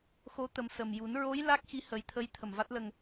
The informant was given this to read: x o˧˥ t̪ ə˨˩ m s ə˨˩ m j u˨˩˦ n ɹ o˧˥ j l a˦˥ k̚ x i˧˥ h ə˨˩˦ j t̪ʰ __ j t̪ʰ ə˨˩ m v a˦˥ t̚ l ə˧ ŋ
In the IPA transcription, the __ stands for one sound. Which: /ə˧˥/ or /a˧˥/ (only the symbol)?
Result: ə˧˥